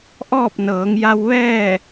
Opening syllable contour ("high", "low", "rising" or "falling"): falling